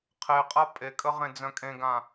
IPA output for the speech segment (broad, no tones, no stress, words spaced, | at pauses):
qʰeqʼa pʼekʼə ʁẽd͡zœ̃kʼẽɡã